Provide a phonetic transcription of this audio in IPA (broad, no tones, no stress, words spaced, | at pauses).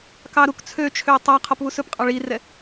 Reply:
kɑɾuk t͡sʰøt͡ʃʰø tˤɑqʰɔp βusɵpqʼɑ ɭirɛ